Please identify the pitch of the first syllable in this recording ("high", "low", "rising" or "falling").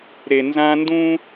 low